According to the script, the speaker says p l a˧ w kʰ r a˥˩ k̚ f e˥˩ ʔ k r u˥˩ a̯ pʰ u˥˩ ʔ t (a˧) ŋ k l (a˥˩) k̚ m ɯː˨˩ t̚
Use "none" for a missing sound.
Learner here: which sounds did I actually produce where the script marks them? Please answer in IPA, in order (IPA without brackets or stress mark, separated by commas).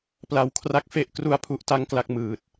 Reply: a˥˩, a˥˩